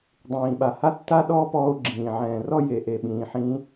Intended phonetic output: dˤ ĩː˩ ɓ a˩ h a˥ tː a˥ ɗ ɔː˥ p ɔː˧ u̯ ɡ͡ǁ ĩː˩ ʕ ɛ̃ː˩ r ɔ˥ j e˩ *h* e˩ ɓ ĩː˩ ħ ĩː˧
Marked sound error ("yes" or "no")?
yes